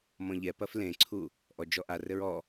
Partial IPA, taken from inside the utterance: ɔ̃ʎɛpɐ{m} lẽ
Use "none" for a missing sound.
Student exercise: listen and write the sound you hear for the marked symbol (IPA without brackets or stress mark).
f